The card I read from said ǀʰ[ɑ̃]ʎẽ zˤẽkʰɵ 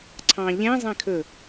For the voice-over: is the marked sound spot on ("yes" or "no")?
yes